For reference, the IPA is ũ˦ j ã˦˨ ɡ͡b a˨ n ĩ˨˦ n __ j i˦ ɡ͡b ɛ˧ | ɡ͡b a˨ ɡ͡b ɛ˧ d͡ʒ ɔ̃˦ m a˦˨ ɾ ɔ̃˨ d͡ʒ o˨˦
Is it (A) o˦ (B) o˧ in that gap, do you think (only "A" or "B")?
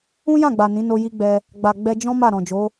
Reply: B